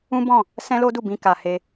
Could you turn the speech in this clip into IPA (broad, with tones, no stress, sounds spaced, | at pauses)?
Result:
ũ˦ b ɔ̃˦˨ | s ɛ̃˦ l o˦ d u˦˨ b ĩ˧ k a˨ h e˧